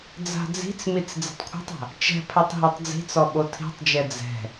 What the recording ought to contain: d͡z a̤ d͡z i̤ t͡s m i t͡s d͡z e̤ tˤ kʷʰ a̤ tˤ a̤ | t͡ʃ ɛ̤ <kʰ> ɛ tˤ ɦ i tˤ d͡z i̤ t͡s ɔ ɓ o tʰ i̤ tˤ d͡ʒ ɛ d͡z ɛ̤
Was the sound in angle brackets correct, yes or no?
no